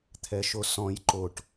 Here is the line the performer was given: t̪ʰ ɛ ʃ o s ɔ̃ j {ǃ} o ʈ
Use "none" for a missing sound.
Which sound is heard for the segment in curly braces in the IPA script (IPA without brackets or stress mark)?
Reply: ǃ